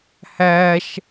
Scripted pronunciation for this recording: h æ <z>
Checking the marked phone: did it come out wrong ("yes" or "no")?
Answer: yes